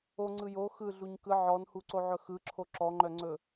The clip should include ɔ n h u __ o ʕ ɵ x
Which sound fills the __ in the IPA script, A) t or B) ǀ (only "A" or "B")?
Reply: B